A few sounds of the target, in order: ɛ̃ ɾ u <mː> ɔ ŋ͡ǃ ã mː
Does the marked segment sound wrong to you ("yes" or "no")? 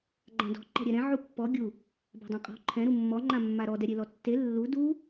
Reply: no